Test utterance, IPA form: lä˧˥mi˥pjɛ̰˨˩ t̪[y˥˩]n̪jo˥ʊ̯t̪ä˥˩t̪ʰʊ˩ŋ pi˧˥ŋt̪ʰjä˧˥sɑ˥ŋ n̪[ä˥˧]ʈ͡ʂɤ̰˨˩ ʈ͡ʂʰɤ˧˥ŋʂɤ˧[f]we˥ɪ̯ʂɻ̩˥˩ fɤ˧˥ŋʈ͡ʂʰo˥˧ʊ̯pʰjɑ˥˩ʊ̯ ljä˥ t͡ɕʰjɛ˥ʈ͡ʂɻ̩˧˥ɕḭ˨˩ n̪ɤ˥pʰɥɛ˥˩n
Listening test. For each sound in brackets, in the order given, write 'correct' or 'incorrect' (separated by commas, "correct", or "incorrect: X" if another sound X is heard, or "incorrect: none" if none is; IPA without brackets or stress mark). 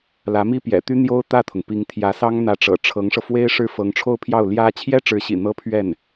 incorrect: y˥, incorrect: ä˧˥, correct